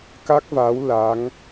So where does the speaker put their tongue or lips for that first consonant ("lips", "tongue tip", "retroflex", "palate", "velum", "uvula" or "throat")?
velum